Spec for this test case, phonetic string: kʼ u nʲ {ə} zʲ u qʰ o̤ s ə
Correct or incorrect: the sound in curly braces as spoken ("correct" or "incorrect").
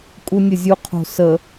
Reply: correct